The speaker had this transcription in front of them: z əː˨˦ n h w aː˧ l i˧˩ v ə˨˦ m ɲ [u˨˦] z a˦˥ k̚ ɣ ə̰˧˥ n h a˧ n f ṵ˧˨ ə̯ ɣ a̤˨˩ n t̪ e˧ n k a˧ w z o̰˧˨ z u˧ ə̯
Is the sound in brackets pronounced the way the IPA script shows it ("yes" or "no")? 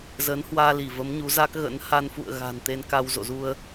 yes